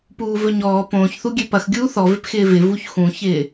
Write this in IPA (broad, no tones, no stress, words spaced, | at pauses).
puːvɵɲɔː põːçθuɡʲø pɐxɡʲuː θɔvɪpxɪː vɪvuç xũçɪː